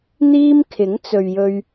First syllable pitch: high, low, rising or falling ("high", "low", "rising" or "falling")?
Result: high